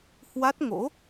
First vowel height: low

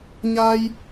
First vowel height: low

